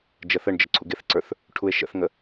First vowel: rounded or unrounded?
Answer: unrounded